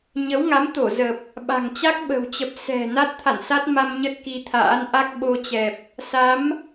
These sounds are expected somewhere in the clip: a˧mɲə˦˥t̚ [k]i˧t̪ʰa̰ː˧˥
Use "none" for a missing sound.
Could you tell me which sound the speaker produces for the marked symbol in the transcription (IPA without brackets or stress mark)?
k